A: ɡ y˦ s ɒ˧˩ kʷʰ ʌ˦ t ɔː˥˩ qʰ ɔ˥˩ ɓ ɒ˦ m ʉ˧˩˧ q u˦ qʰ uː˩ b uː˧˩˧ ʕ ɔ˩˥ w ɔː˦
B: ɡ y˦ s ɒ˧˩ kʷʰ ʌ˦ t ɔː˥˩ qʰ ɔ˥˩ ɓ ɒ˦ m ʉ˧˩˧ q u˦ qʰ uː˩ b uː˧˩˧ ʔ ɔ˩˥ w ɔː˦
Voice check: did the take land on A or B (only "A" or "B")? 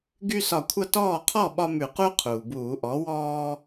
B